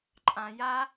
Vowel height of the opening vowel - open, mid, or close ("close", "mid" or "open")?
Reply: open